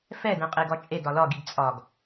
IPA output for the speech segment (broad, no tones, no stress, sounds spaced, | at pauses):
f ɛ d ɛ̃ qʼ e ɡ ɒ t͡ʃʼ e d ɒ l ɒ ɡ i ɡ t͡sʼ ɒ ɡ